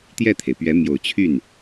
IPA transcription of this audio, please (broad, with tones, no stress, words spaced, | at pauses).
t̪jɛ˥˩t̪ʰe˩ɪ̯pɥɛ˧˥ mjo˨˩ʊ̯t͡ɕʰy˥˩n